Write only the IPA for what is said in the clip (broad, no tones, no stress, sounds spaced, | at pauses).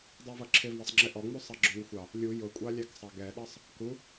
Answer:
dˤ æ v ʌ ǁʰ ɪ v ɑ sˤ ŋ͡ǁ ɪ ʔ ɔ ŋ͡m u sˤ ɑ ɡ͡ǁ ʊ ŋʷ ɪ xʷ ɑ | lʲ u j ʊ kʷʼ ɑ lʲ æ k sˤ ɑ ɡ ɛ ɗ ɑ sˤ | k u